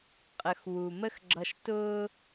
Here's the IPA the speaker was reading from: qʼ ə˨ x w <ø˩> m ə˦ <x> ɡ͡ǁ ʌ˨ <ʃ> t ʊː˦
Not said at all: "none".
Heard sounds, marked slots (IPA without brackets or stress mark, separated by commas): u˩, x, ʃ